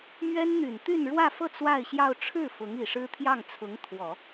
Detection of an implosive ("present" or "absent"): absent